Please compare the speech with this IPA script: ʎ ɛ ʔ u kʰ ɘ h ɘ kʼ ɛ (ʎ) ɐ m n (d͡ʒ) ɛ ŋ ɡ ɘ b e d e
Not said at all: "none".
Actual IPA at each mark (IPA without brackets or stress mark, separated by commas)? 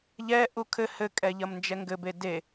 ʎ, d͡ʒ